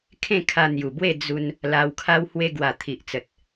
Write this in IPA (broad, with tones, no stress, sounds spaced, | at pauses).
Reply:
kʰ ẽ˥˧ kʰ a˧ n̪ j u˨˩ b w e˥˧ d͡z u˧ n | l a˧ w kʰ a˧ w h w e˧ ɡ w a˨˩ t̪ʰ i˨ ʔ t͡s ə˨ t̚